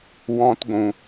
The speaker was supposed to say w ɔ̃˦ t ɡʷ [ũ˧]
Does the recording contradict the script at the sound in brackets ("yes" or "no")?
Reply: no